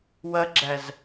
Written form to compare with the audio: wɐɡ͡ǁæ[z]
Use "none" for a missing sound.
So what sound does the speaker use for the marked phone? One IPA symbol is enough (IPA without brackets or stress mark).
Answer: z